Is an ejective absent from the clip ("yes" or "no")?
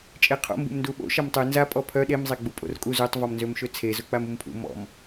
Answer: no